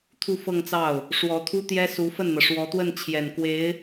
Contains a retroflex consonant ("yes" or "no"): yes